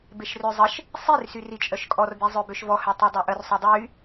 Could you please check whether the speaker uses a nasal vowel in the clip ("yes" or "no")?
no